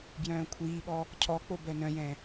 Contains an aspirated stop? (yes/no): yes